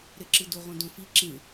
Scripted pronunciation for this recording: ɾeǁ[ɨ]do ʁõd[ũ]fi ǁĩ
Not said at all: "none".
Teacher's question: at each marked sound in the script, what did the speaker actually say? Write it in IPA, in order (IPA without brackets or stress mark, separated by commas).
ɨ, õ